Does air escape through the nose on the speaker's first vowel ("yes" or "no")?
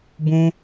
yes